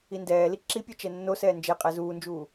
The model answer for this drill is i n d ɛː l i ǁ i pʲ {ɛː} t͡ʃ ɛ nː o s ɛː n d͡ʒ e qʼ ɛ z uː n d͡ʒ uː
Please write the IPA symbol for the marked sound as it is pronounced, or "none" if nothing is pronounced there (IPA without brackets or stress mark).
ɛ